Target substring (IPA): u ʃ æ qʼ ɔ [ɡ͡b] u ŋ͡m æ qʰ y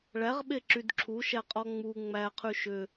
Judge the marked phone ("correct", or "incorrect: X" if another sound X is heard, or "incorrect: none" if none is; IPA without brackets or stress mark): incorrect: ŋ͡m